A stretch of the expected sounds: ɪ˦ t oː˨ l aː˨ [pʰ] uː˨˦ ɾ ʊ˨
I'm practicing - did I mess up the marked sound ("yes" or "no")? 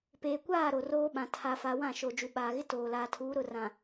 yes